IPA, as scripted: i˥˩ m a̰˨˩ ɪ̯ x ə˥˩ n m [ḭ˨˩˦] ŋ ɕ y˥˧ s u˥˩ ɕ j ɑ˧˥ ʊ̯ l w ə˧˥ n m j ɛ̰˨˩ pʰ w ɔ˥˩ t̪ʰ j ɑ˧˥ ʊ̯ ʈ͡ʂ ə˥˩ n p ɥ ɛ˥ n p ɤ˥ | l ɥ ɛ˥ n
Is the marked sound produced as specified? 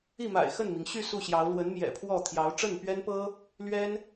no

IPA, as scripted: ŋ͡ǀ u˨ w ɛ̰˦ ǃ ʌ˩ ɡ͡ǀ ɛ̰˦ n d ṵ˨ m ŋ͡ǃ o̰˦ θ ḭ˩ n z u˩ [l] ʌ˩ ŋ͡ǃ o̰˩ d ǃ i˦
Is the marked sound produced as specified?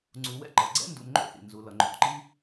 yes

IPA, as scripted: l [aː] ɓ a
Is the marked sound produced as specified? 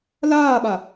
yes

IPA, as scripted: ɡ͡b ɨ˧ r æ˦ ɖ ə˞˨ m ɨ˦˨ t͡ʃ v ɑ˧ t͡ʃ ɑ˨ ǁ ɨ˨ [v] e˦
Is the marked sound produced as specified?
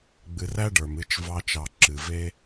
yes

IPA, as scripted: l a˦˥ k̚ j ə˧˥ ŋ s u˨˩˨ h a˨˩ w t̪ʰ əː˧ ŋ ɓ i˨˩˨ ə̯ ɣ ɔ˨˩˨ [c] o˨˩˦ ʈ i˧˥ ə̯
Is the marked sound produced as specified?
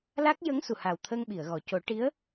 yes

